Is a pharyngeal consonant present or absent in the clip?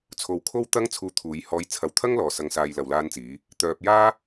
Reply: absent